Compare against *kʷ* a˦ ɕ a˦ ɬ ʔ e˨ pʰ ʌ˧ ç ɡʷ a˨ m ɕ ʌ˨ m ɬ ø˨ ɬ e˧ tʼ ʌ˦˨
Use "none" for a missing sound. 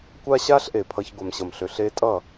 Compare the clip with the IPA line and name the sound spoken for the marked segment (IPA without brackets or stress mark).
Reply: kʷ